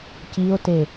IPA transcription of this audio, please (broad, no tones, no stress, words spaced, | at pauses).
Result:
cio̯te